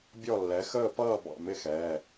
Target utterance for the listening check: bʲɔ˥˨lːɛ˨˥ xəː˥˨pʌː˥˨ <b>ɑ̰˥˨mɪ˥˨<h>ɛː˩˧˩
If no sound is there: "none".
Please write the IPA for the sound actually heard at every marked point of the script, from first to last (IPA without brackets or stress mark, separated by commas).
b, x